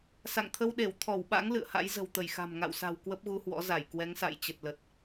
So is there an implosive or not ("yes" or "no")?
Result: yes